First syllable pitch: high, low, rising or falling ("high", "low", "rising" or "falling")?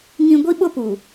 high